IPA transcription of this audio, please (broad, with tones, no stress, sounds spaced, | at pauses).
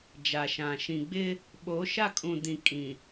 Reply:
d͡ʒ a˨ ʃ ã˨ ʃ ĩ˨ ɡ͡b ɪ˦ | ɓ o˨˦ ʃ a˦˨ kʼ ũ˨ d ĩ˨ kʼ ĩ˨